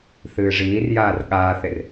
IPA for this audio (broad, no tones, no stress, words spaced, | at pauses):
θɨːʐiːrjaːr ɠaːθer